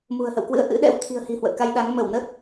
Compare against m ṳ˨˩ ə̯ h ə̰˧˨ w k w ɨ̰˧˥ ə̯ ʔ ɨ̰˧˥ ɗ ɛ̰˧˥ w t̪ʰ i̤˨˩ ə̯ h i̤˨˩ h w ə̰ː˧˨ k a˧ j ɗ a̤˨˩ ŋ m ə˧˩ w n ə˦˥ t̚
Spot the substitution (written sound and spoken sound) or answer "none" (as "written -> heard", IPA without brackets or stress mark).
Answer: a̤˨˩ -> a˨˦